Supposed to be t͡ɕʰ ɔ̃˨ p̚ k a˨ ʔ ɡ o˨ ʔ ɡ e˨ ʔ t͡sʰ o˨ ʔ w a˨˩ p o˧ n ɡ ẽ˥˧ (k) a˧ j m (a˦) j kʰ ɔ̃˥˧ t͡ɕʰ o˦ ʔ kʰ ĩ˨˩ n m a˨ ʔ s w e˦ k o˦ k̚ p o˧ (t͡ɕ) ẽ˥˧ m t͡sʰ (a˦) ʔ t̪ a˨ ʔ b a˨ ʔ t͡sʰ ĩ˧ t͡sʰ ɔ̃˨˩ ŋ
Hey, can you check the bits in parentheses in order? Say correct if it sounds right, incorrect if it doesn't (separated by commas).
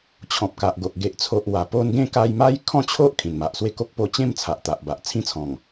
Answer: correct, correct, correct, incorrect